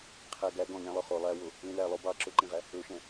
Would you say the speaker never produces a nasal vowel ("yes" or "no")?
no